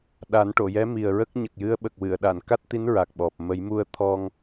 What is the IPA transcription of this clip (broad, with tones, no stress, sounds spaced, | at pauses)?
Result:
ɗ a˨˩˦ n ʈ o˨˩˨ j ɛ˧˥ m i˨˩ ə̯ ɹ ə˦˥ k̚ ɲ ə˨˩ k̚ j ɨ˧˥ ə̯ ɓ ə˨˩ k̚ w ɨ˨˩˨ ə̯ ɗ a˨˩˨ n k a˦˥ t̚ t̪ i˧˥ n ɹ a˨˩ k̚ ɓ ɔ˨˩ p̚ m ə˨˩˦ j m u˧ ə̯ t̪ʰ ɔ˧ ŋ